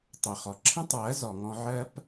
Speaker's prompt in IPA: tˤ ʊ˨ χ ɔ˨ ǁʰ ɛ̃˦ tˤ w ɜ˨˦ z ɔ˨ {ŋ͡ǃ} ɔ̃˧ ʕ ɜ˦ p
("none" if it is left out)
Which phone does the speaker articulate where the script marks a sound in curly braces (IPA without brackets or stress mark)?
ŋ